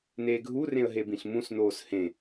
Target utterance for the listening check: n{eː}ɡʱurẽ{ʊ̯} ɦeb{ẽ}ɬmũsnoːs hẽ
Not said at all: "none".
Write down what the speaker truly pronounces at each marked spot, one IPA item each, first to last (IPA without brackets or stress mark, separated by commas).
eː, ə̯, ĩ